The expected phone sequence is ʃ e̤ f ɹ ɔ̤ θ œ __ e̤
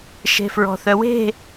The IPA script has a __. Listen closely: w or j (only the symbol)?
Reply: w